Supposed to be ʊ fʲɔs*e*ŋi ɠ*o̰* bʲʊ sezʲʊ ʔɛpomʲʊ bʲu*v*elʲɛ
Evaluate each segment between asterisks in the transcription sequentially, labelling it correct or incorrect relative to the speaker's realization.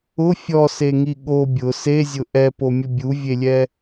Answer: correct, incorrect, incorrect

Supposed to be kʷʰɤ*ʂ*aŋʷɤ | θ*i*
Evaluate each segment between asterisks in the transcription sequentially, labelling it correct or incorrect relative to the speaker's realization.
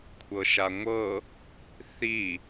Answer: incorrect, correct

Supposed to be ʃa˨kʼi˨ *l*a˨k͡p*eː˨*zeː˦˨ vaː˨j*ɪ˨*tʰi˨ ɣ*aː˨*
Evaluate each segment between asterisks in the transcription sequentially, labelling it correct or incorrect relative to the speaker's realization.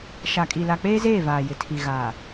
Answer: correct, incorrect, correct, correct

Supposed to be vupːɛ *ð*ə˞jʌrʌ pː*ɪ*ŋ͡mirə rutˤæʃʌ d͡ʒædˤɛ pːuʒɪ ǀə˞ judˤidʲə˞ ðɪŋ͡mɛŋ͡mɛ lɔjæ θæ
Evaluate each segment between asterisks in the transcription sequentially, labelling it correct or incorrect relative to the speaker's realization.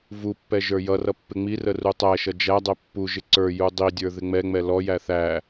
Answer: incorrect, correct

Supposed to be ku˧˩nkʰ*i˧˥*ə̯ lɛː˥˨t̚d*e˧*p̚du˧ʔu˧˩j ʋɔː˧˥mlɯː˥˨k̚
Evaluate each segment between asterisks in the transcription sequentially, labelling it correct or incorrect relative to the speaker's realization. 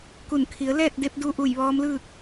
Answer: incorrect, correct

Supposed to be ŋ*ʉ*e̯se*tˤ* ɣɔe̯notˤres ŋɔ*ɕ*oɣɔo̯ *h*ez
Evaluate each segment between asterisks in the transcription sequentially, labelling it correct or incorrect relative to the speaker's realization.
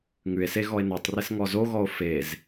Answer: correct, incorrect, incorrect, incorrect

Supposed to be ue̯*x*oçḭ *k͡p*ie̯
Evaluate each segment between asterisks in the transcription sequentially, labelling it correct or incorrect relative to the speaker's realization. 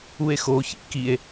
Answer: correct, incorrect

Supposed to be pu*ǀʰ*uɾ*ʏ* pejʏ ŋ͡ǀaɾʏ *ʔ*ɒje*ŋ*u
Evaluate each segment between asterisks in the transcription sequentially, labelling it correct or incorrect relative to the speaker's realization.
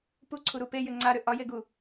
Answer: correct, incorrect, correct, incorrect

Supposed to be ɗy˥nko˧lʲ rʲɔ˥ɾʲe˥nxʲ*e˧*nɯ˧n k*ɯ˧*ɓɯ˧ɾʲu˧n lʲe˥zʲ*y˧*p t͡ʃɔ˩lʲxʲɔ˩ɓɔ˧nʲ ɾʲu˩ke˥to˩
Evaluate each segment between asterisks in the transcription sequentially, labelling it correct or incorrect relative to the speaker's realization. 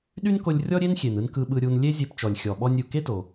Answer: incorrect, correct, incorrect

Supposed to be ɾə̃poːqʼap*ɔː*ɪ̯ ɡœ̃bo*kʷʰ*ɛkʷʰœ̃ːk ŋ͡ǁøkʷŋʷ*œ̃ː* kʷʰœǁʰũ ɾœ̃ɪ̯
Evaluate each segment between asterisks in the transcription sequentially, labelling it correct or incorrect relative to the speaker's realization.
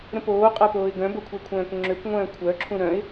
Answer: incorrect, correct, correct

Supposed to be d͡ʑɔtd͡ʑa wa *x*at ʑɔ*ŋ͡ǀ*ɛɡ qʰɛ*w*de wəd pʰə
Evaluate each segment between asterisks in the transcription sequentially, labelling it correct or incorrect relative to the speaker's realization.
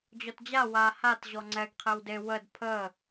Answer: incorrect, correct, correct

